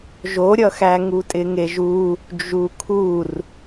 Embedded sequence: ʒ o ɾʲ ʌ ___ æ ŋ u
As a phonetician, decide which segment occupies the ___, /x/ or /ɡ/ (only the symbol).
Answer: x